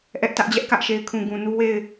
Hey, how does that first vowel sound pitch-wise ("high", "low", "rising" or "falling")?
high